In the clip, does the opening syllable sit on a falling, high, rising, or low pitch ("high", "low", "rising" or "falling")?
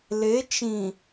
rising